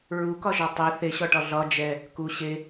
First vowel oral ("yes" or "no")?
yes